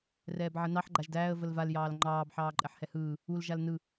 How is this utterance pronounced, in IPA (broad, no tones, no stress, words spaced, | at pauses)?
rɛːbʕənɑħ ɡ͡ǃaʒdæːə̯ vəlval jɑːlŋ͡ǃɑːb ħɑːǃʼɛħhɛhɯː | ul ʒalnɯ